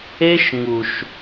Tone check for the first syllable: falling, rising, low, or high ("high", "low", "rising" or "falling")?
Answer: high